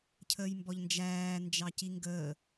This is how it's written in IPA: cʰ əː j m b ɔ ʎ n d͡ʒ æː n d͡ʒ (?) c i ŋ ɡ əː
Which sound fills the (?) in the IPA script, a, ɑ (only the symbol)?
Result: ɑ